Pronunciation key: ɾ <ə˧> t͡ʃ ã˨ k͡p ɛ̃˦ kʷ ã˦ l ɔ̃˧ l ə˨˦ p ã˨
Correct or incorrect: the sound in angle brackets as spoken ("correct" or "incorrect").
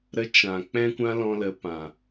correct